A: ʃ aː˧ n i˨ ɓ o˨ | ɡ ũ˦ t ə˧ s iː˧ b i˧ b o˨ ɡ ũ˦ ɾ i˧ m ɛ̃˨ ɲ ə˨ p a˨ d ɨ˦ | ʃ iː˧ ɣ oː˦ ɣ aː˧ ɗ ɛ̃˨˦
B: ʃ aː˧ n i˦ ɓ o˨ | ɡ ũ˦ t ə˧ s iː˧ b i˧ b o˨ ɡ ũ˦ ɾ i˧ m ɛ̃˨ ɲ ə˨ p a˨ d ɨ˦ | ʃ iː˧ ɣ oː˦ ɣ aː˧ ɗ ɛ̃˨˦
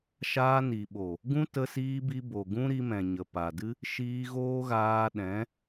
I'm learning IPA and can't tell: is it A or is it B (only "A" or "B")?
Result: A